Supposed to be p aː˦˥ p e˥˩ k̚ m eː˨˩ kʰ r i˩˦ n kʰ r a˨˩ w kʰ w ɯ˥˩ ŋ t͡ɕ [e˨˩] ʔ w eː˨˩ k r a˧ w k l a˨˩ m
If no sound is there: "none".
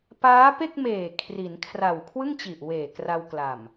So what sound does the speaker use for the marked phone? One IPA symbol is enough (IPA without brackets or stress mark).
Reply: i˨˩